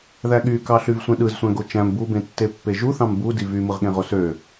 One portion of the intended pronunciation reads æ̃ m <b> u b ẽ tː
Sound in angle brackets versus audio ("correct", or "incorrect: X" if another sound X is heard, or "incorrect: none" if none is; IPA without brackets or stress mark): correct